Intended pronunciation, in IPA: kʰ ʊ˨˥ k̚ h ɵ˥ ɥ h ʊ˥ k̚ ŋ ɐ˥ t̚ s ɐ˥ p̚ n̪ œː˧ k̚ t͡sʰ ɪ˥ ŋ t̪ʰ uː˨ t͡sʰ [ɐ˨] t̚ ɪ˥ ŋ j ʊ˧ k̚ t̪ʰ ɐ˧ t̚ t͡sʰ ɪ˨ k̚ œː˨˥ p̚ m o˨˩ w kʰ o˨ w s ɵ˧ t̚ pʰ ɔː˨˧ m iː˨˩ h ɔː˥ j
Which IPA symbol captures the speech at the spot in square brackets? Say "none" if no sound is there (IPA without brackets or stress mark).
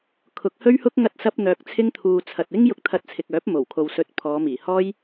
ɐ˨